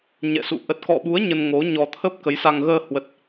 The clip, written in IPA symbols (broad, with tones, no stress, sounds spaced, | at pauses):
ɲ ɛ̰˧˨ s ṵ˧˨ ʔ ə˨˩ t̚ k ɔ̰˧˨ ɓ u˨˦ ə̯ ɲ ə˧ n ŋ o˨˦ ɲ ɔ˧ t̪ʰ ə˦˥ p̚ k ə˨˦ j s a˧ ŋ ɣ əː˧ h w ə˨˩ t̚